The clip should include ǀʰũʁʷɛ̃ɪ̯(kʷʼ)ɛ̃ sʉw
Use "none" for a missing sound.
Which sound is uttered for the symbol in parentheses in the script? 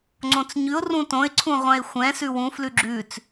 xʷ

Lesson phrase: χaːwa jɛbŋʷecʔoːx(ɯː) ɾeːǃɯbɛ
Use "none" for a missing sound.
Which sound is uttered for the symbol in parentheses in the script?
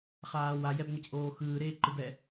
ɯː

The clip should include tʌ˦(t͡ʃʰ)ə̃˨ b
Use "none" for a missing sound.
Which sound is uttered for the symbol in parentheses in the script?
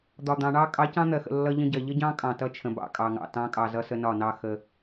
t͡ʃʰ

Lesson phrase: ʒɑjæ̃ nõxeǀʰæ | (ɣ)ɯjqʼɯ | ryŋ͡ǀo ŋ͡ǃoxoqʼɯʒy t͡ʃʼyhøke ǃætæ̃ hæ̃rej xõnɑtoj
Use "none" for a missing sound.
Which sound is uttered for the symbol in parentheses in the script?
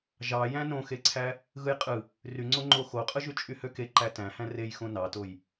ɣ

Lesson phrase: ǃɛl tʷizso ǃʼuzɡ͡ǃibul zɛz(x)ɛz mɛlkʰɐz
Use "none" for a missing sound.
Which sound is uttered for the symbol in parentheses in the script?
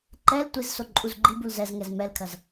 ŋ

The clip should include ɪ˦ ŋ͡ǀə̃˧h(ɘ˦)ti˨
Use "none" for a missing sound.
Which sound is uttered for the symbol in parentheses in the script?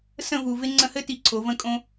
ɘ˦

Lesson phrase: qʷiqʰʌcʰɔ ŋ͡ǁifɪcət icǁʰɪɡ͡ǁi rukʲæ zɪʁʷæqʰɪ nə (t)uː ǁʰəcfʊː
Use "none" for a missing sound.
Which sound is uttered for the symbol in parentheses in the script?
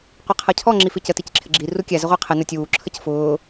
tʲ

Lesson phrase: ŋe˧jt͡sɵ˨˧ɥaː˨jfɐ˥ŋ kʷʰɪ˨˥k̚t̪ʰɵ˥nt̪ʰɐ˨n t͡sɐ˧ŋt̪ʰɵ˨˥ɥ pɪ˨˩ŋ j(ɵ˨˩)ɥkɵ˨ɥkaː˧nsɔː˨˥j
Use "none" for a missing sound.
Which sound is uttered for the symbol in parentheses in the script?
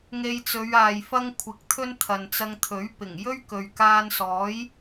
ɵ˥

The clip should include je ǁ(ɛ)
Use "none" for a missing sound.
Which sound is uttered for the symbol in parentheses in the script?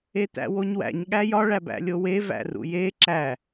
æ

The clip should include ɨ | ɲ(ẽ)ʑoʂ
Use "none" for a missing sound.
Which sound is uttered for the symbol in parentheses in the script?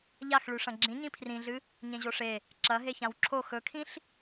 ẽ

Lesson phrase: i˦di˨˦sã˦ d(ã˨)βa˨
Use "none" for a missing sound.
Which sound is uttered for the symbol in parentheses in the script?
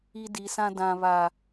ã˨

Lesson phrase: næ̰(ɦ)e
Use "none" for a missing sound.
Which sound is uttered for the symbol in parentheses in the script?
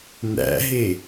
ɦ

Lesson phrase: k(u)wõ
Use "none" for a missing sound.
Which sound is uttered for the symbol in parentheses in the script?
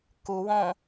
u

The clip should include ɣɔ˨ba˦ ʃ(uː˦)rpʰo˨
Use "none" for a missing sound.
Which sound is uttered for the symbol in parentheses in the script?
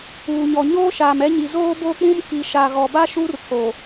uː˦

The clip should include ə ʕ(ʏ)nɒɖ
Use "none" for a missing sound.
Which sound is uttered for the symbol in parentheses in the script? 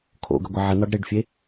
ə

